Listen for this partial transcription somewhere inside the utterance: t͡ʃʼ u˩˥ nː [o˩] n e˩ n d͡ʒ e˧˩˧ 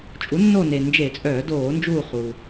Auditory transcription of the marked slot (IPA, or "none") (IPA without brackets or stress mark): o˦˨